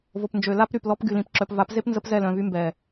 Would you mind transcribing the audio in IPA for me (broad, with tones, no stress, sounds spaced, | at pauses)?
v o˨ p n d͡ʒ ø˨ l a˦ p ɾ y˨ p l ɔ˦ p ɡ y˨ l ĩ˨ p ǁ œ˨ p v a˨˦ p z e˦ p n z ə˦ p z ɛ˦˨ l œ̃˨ v y˦ m b ɛ˨